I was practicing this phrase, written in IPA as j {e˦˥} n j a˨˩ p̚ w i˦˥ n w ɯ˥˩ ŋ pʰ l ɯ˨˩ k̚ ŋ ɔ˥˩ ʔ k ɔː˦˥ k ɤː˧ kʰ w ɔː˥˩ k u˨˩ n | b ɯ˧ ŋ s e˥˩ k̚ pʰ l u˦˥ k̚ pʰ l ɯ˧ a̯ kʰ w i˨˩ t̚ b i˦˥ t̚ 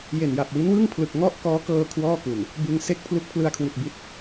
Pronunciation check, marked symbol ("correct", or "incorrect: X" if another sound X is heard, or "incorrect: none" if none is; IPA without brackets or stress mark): incorrect: e˨˩